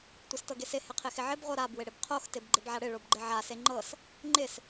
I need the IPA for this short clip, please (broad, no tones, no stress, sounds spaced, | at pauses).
tʷ ɪ s t ɤ ɡ e s ɪ h ɪ qʰ ɪ x ɪ ʕ ɪ b ʁʷ ɤ ɾ a b w ɪ ɽ ɪ b qʰ o x t ɪ b ɡ͡ǃ ɪ b ʕ a ɽ ɪ ɭ o b ɡ͡ǃ ɪ ʕ a s e ŋ͡ǃ ɤ s | ŋ͡ǃ ɪ s